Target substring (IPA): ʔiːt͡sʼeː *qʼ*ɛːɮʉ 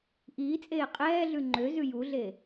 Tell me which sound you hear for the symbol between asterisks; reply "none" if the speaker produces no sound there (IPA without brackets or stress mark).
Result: qʼ